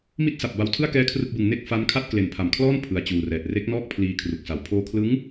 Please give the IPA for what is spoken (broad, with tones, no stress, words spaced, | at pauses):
mi˥˩t̚sa˨˩p̚ba˧wtʰɯ˥˩a̯ kɛː˥˩kʰrɯ˥˩k̚bɯ˧ŋ ne˥˩k̚fa˦˥nkʰa˥˩t̚ kle˨˩npʰa˨˩mkʰlɔː˥˩n pʰɯ˨˩a̯t͡ɕuː˨˩rɛː˨˩t̚ re˦˥k̚nɔː˥˩k̚pʰliː˧ kʰru˨˩k̚sa˨˩w pʰoː˧kʰlɯ˦˥ŋ